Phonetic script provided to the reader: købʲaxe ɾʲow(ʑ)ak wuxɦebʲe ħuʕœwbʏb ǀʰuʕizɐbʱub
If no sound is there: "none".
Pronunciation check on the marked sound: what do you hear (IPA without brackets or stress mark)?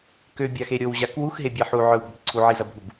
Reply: ʑ